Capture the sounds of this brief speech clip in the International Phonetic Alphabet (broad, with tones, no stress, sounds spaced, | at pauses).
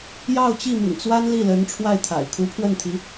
j ɑ˥˧ ʊ̯ t͡ɕ i˥˩ m ḭ˨˩ ŋ t͡s w a˥ n l i˥˩ l ə˧˥ n ʈ͡ʂʰ w a˥˩ ɪ̯ t̪ʰ a̰˨˩ ɪ̯ kʰ u˧˥ pʰ w ə˥˩ n t̪ʰ i˧˥